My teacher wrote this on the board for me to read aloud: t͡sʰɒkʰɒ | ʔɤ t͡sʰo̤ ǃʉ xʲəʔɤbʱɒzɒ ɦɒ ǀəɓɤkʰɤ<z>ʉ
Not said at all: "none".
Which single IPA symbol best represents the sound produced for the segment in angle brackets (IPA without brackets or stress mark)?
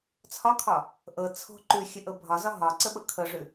ʐ